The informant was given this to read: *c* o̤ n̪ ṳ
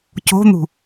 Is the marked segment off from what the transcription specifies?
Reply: no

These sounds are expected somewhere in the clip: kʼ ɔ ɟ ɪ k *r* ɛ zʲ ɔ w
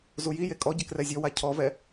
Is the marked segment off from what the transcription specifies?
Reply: no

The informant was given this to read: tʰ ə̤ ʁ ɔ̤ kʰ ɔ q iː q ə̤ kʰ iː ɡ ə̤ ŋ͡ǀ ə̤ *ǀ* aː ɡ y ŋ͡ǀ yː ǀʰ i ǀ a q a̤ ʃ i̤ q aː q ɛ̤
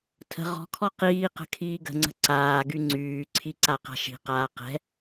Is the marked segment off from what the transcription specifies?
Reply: no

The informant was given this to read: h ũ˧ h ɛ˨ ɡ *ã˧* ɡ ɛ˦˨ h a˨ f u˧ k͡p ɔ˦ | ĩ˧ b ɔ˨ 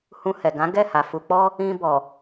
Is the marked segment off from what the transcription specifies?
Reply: yes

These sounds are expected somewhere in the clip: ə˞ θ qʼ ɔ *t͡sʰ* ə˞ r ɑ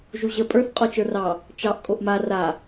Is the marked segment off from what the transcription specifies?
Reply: yes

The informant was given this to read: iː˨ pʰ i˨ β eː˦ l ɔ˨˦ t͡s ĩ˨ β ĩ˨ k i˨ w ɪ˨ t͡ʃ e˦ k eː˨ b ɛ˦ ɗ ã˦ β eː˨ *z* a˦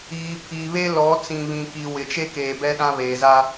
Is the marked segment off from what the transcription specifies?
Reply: no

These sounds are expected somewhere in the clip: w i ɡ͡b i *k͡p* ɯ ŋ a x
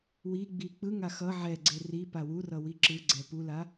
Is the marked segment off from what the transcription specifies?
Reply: no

